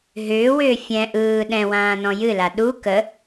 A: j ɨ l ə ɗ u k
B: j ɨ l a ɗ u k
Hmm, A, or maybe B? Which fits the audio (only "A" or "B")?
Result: B